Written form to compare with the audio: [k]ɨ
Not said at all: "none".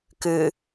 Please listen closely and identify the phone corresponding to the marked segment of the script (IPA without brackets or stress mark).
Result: k